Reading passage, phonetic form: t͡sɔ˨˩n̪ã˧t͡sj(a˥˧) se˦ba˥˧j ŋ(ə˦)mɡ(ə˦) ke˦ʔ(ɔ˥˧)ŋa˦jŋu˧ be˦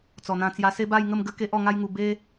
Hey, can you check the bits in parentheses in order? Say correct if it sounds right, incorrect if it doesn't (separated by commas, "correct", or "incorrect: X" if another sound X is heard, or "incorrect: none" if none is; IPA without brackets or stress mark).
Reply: incorrect: a˧, incorrect: ə˥˧, correct, correct